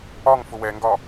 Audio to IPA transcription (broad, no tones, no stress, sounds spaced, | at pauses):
ɒ ŋ f ʊ w ɛ ŋ ɡ ɒ